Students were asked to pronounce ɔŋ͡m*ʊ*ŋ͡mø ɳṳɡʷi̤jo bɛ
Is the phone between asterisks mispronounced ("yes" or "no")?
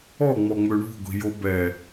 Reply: yes